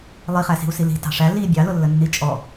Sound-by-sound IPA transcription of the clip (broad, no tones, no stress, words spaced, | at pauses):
lˠiχæsi̤u̯si li̤ tɑ̤ʂæ li bʲɑlʊlːənːi t͡ʃʼɔ